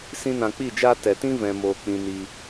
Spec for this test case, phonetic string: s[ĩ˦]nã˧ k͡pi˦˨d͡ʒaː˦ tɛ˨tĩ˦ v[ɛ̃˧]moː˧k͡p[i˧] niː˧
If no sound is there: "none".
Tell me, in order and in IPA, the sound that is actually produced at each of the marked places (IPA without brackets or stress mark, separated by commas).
ĩ˦, ɛ̃˧, ĩ˧